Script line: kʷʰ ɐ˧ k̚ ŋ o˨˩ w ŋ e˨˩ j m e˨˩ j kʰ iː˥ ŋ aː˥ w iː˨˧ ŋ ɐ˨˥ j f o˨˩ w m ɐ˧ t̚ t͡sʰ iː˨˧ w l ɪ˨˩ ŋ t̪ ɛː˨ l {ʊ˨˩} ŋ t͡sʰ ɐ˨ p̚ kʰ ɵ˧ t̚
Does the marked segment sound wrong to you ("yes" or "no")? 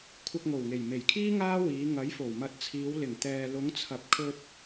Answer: yes